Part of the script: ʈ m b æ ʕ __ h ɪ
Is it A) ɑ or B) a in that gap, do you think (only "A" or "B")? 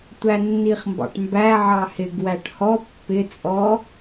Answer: A